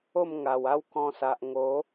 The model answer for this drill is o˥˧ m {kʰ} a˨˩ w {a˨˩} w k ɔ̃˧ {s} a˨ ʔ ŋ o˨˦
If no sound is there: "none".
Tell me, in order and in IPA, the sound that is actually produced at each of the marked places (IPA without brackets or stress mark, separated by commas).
ŋ, a˦, s